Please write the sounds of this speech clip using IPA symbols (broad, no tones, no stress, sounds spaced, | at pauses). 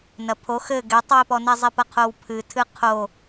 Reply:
n ɐ pʰ o x ɘ ɡ ɛ tˤ w i p ɔ n ɛ zˤ i p ɐ qʰ o w pʰ ɨ tʰ ɨ qʰ o